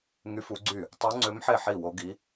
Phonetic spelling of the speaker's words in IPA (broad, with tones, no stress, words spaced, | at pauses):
ŋy˧˥ fu˧˥ɡ͡ǀy˥˩ | tˤu˧˥ŋ͡ǀø˧˥mħe˥˩ ħi˥˩wo˧˥ɡi˧˥